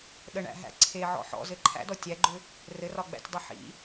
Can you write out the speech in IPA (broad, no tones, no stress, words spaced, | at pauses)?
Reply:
ɗəɳæ̰ɦæ̰ ǀʰeʕɔ̰ ħɔ̰zɘ ǃʰæ̰dɔ tʲæɡ͡ǃʏ | rɘrɒɡ͡bæ̰tʲdˤi ħḭ